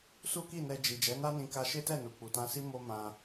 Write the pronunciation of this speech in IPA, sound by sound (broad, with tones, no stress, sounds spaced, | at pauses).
s u˦ k i˦˨ n ɛ˧ d͡ʒ i˨ d͡ʒ ɛ˨˦ n a˦ n ĩ˧ k a˧ ʃ e˦ t ɛ˦˨ n u˨ k͡p u˨ t ã˧ s i˦ m o˦ m ã˧